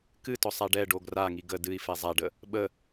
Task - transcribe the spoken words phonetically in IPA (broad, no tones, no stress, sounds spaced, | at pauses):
k ɨ t ɔ sˤ a ɖ ɛ ɖ o ɡ r a ŋ i ɡ ə d ɨ i̯ f ɛ zˤ a ɖ ə | ɓ ə